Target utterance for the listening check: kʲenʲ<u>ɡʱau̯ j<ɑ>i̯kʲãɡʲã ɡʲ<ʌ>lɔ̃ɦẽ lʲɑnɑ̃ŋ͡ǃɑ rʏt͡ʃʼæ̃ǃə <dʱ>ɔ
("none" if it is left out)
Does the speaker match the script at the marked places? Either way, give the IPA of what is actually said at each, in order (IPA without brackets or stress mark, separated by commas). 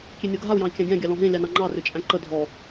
o, ɑ̃, ɑ, dʱ